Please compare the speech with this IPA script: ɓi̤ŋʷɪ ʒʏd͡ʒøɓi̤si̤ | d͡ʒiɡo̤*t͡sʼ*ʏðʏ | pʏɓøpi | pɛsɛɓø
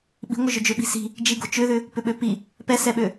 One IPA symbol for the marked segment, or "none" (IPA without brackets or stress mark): t͡ʃ